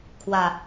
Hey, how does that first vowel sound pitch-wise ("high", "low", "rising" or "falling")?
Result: low